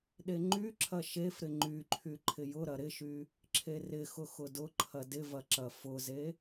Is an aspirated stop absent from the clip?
no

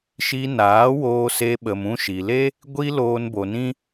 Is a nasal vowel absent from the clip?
no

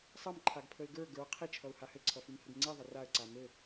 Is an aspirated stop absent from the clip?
no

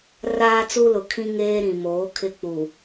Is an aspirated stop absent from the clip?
no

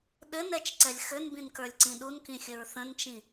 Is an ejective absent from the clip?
yes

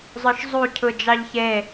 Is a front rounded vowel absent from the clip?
no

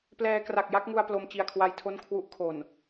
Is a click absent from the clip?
yes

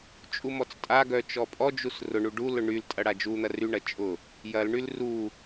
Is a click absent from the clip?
yes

